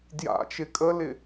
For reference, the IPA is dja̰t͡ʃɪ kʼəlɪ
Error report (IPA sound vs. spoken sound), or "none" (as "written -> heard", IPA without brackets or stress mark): none